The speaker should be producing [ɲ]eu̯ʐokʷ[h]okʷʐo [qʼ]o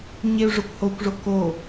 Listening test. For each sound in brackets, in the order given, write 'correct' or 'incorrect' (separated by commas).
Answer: correct, correct, incorrect